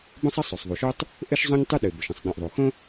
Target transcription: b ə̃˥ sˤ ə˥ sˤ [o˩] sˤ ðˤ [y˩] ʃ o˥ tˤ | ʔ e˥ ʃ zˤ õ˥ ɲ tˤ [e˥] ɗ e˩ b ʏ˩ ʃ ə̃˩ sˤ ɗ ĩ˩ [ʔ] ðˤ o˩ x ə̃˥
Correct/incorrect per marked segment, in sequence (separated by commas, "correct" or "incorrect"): correct, incorrect, incorrect, correct